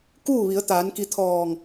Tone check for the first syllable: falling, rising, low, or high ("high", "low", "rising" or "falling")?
falling